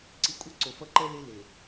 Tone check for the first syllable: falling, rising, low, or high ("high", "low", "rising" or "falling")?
low